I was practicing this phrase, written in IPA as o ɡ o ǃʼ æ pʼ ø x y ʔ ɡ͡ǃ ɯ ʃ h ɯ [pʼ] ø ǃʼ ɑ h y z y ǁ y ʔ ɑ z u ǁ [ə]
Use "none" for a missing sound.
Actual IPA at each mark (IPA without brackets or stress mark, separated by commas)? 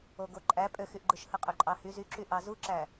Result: qʼ, æ